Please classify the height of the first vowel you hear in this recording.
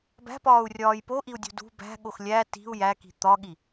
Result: low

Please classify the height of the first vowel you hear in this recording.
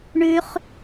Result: high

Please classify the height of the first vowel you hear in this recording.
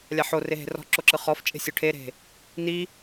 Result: low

